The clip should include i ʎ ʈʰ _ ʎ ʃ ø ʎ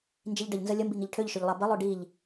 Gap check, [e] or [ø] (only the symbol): ø